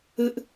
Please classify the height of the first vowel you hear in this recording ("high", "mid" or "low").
high